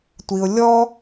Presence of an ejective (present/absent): absent